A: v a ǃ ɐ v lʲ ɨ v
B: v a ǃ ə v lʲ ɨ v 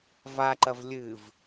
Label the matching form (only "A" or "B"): A